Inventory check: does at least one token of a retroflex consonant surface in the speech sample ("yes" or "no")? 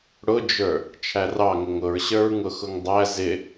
yes